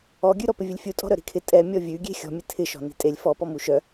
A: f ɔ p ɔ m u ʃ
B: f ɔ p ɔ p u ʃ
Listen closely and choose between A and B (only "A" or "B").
A